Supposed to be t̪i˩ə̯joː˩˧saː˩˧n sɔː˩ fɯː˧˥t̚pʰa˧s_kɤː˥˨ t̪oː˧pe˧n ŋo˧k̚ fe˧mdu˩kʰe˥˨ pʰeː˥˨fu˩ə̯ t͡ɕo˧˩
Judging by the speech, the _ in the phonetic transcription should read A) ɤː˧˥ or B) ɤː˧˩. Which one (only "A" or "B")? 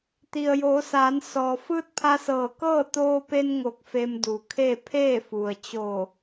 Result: B